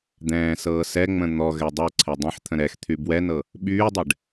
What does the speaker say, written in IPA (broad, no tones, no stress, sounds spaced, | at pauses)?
d̪ ɛ̃ː s ɤː s ɛ ŋ͡m ə̃ n̪ ɔ ɣ ɛ dˤ ɤ ǀʰ ɛ dˤ ɛ̃ ħ t̪ʰ ə̃ ɾ ɛ x t̪ʰ y b w ɛ n ɤ | ɓ yː dˤ ɛ ɖ